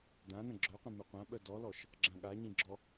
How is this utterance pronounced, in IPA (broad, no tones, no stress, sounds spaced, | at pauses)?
d ã n ə̃ ɡ͡ǁ œ qʷ ĩ m ø qʷ ã ɓ œ d ɔ l ɔ ʃ | ɡ͡ǁ ã ɠ a ɲ ĩ ɡ͡ǁ ɔ